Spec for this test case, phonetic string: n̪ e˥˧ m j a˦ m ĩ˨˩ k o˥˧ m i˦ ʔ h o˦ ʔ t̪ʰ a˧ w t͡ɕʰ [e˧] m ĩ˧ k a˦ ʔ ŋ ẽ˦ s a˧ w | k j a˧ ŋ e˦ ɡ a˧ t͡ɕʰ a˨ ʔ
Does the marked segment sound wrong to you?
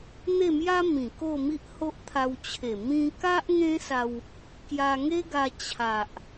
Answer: yes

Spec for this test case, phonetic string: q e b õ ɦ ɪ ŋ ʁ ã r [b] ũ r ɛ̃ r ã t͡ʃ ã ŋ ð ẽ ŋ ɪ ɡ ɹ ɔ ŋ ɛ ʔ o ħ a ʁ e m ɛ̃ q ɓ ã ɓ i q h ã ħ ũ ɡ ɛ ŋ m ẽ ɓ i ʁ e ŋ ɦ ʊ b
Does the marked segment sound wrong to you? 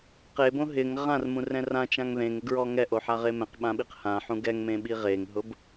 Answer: yes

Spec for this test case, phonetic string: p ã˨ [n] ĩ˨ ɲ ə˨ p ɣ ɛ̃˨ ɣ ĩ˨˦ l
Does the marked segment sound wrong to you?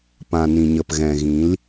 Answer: no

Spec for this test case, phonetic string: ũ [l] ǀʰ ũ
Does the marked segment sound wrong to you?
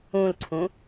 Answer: no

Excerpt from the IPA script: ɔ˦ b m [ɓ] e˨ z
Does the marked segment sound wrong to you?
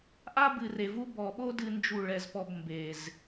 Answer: yes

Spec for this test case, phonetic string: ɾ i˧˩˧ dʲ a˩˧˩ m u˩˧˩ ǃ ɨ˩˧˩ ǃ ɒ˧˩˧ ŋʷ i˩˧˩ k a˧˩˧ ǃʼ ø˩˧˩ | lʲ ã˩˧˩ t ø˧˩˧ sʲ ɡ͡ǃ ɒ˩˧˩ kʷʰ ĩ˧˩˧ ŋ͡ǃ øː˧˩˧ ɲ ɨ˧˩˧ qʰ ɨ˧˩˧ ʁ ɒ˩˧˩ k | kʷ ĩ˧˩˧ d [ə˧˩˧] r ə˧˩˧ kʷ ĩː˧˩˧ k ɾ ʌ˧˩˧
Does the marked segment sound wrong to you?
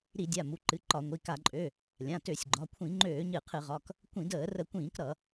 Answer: yes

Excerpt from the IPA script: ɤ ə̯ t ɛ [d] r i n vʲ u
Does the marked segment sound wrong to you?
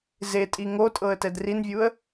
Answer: no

